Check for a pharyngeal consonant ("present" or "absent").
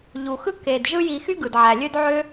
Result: present